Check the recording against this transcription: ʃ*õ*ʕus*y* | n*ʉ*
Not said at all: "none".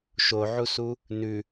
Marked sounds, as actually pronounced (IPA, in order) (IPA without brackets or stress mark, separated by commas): o, u, ʉ